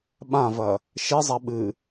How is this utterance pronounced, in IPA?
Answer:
ɓ ã v ɐ | ʃ e zˤ a ɓ ɨ

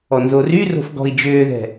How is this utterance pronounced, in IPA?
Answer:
ɔ n z o r y r o̤ f ɡ ɔ̤ i̯ d͡ʒ ʏː ð ɛ̤

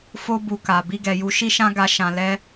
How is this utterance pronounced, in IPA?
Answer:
f o˧ b u˨ k a˨ b i˧ ɡ ɛ˨ j u˧ ʃ i˦ ʃ ã˦ ɡ a˦ ʃ ã˧ l ɛ˦

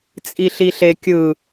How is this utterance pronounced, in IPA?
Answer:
t͡sʼ i ɬ i ɬ e kʲ ɯ

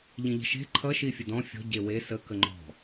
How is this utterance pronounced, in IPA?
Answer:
ʎ ĩ ʎ ə̤ ʃ e̤ ǃʰ ʌ ʃ i fʲ ə d ɔ̃ fʲ ɔ̤ ɟ e w e s ə k ə ŋ͡ǃ ɔ̤

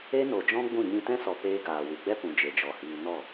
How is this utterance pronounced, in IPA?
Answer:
e˦ n o˨ d͡ʒ ɔ̃˦ ɡ͡b ũ˦˨ ɲ ĩ˧ t ɛ̃˦ s ɔ˨ p eː˧ ɡ aː˨ w ɨ˨ ɡ͡b ɛ˦ p ũ˨ d͡ʒ e˨ d͡ʒ ɔ˨ h iː˧ n ɔ˦˨

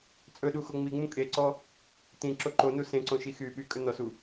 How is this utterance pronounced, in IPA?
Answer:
t͡sʼ ɵ ɗ u x o ŋ͡m i ŋ͡m ũ kʼ e ǀ ɔ | t ĩ ǁ o ǃ o n u s ẽ ǀ õ ʃ i x yː ɓ y kʼ ɵ n ɔ s u

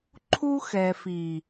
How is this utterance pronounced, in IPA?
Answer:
ǃʰ u˦ x ɛ˨ f i˨

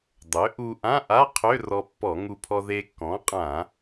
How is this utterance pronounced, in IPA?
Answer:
dˤ ø˩˥ ʔ u˧ ʔ ã˧˥˧ ʔ a˧˥˧ qʰ ø˧˥˧ r ɔ˧ pː ɔ˧˩˧ ŋ u˧ pʰ ɔ˧ ð e˧ kː ɔ̃˩˥ qʼ ã˧˩˧

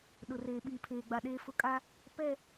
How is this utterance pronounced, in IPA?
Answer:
ɗ ʊ˨ r eː˨ ɓ i˨ pʰ eː˨ ɡ͡b a˨ ɗ eː˦ f ʊ˦ kʼ a˦ | p ɛ˦˨

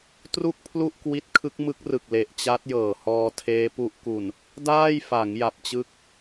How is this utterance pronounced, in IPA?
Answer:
t r u˥˩ k̚ pʰ l u˥˩ ʔ k w i˦˥ t̚ kʰ ɯ˦˥ k̚ m ɯ˦˥ k̚ r ɯ˨˩ k̚ l e˨˩ ʔ t͡ɕ a˦˥ t̚ j ɤː˨˩ h ɔː˧ tʰ eː˦˥ p u˦˥ ʔ k u˨˩ n | d aː˥˩ j f a˩˦ ŋ j a˨˩ p̚ t͡ɕ ɯ˦˥ k̚

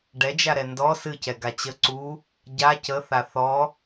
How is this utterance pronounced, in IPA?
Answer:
ɖ ɛ d͡ʒ a ɾ ɛ n d ɔ s ɨ c ɛ ɡ a t͡ɕ ə ǀ u | ɟ a c ə θ a θ ɔ

